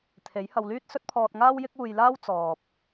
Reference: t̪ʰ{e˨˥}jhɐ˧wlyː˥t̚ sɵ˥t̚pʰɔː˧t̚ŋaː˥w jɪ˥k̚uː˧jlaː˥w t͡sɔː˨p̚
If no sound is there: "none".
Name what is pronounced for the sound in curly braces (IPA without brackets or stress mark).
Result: e˨˥